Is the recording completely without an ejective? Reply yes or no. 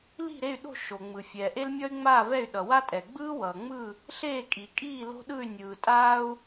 no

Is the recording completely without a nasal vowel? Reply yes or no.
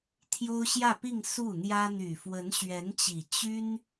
yes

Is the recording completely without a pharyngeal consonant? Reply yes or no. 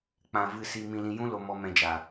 yes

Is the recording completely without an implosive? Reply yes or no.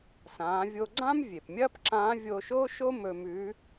yes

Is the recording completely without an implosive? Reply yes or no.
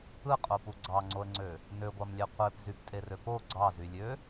yes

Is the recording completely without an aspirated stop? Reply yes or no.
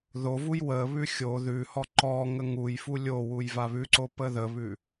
yes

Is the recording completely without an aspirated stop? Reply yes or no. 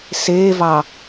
yes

